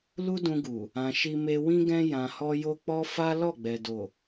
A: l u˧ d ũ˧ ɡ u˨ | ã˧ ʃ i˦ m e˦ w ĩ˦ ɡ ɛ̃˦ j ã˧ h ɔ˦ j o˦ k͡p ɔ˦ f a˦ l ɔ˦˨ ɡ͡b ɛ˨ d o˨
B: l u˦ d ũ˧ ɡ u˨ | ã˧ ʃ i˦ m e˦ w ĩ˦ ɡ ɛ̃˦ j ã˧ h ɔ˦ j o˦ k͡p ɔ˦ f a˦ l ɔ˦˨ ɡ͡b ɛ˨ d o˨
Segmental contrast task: B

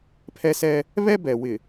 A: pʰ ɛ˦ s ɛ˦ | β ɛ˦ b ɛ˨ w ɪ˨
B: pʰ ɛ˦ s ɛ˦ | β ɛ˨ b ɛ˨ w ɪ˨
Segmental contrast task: A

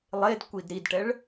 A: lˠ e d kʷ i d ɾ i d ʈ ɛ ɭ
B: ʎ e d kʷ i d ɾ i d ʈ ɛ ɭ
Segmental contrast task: A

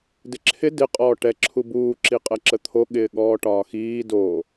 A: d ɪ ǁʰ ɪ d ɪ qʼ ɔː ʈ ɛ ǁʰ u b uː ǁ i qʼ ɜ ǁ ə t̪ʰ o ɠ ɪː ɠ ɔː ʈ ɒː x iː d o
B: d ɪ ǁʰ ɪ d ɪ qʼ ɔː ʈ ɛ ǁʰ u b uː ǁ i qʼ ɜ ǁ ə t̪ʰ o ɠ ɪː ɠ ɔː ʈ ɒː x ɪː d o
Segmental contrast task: A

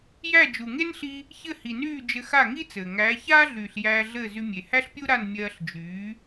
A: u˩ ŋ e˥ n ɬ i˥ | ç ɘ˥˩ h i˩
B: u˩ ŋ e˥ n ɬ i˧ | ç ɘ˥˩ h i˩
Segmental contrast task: B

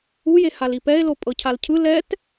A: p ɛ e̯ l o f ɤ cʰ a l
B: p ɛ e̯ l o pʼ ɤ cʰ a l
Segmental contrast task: B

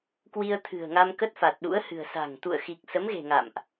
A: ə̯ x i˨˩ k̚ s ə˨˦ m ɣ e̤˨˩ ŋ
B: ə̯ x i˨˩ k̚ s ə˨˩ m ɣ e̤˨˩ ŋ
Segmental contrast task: A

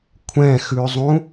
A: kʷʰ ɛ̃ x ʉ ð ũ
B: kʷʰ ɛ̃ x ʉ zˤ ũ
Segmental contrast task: B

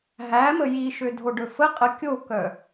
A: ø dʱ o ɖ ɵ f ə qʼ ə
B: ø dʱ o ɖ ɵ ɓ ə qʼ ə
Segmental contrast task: A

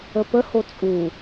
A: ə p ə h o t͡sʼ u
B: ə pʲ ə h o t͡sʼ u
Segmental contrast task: A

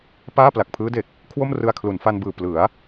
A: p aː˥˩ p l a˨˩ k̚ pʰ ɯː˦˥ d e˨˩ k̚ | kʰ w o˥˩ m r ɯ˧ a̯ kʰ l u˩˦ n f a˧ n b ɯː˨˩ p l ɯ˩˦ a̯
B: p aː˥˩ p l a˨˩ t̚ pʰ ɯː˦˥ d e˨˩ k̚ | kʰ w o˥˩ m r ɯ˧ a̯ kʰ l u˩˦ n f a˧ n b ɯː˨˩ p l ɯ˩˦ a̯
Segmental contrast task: A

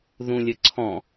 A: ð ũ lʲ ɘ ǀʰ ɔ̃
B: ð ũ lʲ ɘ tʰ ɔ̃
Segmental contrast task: A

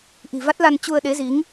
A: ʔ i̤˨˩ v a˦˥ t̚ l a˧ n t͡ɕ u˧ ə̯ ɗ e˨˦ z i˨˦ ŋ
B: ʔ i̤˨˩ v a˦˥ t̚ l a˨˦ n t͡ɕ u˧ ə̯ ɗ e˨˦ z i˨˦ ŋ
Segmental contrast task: A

